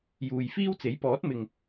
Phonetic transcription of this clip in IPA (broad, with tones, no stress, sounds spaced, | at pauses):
j uː˨ j f iː˥ w t͡s e˨˥ j p ɔː˨˥ t̚ m ɪ˨ ŋ